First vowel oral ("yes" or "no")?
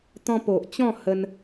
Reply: no